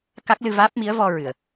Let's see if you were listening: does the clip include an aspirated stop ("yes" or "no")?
no